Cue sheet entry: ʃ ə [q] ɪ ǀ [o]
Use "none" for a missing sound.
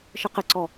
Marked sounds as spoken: q, ɔ

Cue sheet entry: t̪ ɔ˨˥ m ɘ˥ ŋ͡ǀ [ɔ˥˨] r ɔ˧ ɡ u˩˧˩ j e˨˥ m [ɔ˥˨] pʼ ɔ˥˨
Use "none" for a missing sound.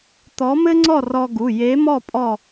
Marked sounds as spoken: ɔ˥˨, ɔ˥˨

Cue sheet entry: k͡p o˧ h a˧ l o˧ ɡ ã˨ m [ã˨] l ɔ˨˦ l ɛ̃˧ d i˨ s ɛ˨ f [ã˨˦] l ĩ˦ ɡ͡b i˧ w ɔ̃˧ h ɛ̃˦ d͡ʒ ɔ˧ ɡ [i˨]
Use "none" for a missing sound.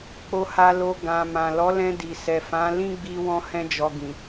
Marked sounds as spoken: ã˨, ã˨˦, ĩ˨

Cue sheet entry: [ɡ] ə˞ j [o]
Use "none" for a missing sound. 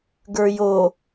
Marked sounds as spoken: ɡ, o

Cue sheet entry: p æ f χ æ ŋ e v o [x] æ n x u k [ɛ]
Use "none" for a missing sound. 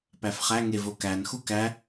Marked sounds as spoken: k, æ

